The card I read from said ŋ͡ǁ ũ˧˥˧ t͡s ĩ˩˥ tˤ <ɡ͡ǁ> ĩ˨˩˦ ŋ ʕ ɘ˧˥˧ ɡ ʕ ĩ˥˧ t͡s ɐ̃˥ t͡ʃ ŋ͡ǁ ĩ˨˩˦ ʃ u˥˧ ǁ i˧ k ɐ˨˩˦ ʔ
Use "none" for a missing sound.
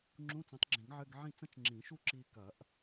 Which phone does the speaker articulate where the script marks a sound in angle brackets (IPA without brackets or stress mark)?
ɡ͡ǁ